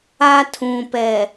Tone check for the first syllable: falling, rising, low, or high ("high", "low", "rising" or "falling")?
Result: high